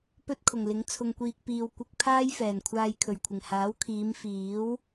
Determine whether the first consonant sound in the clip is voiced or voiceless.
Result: voiceless